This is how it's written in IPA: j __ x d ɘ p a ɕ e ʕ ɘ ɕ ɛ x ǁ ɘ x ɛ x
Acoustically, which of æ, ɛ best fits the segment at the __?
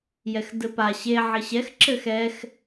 ɛ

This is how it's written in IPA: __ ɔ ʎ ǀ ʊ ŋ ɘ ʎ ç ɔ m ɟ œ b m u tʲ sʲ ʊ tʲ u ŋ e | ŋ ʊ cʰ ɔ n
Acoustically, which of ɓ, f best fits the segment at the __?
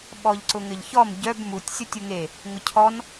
ɓ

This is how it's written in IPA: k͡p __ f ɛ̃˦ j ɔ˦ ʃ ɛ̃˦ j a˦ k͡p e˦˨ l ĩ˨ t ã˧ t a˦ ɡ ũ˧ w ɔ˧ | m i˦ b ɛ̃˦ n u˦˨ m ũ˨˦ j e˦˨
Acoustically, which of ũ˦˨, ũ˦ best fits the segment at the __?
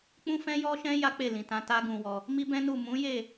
ũ˦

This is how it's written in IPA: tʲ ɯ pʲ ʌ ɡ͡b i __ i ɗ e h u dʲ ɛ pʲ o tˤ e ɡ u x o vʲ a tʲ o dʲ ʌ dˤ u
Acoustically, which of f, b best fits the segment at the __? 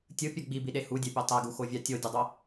b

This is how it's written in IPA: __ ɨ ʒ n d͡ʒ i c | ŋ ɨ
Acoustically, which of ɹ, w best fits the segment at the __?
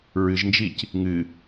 ɹ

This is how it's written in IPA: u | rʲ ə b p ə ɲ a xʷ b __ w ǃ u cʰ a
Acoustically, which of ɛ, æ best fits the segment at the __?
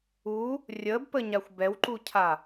ɛ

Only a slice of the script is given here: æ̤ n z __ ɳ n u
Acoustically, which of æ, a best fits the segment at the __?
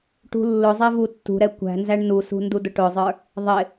æ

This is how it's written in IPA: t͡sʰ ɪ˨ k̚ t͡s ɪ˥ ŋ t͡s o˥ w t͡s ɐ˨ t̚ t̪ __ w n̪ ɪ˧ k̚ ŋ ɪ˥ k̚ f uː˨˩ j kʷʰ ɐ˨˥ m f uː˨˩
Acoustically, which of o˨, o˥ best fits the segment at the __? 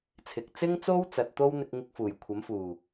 o˥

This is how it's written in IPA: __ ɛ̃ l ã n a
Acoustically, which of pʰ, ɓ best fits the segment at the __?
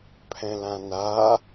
pʰ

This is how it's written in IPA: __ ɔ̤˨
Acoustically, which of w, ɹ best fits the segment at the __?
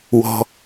w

